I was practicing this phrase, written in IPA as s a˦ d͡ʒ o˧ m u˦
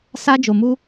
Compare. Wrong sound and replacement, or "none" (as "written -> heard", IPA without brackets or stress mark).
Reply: none